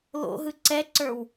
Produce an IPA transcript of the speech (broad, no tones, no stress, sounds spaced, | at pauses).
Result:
l o̰ ɦ ɯ ǀ ɛ ǀ ə˞ w